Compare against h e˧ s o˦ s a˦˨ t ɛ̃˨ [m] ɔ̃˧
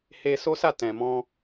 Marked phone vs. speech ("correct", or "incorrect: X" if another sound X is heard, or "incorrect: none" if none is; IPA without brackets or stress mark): correct